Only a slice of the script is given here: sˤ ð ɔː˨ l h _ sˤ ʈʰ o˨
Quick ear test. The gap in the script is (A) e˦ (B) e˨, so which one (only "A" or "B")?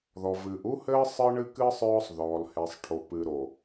B